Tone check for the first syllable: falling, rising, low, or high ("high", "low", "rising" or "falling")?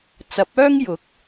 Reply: rising